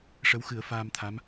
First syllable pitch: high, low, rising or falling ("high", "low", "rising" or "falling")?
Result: rising